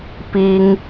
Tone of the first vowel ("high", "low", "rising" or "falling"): high